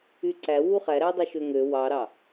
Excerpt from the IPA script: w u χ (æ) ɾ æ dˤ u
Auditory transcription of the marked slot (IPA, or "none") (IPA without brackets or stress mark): æ